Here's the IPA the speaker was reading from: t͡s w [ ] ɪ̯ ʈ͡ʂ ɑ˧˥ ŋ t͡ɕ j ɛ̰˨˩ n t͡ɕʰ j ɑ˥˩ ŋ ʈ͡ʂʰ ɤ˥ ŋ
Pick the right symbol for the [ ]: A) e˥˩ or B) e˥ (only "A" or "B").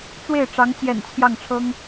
A